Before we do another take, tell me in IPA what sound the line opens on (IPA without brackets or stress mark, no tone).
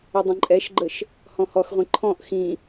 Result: ə